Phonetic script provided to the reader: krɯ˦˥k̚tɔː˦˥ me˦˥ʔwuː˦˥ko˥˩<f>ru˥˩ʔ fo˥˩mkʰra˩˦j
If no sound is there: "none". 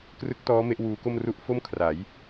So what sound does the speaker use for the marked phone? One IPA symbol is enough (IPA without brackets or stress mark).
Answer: m